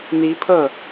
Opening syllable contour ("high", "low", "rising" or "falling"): rising